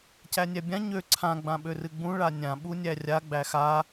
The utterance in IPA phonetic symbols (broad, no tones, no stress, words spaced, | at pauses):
cænʲæbʲã ɲø ǀʰã ɡ͡bãɓørɨɡ͡bũ ɭanʲã ɓunʲærʲa ɡ͡bæxa